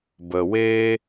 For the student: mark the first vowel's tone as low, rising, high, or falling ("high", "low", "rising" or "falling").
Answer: low